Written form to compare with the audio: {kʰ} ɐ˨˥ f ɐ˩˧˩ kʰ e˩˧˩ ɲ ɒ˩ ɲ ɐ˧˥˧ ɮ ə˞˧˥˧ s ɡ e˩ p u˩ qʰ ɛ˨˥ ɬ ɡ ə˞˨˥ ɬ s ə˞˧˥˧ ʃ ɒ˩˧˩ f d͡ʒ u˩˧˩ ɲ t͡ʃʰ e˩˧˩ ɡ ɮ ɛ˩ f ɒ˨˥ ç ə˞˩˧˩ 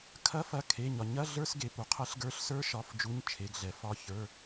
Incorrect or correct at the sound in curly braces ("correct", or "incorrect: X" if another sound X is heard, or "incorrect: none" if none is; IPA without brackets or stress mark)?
correct